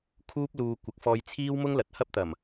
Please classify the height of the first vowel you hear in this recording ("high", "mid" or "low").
high